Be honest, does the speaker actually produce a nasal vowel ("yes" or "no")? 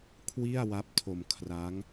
no